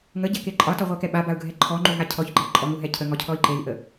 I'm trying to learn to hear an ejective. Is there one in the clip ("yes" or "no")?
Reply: yes